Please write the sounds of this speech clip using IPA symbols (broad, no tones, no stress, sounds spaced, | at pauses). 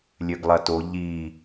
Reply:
lʲ ø ɡ lˠ ɐ t o ʎ i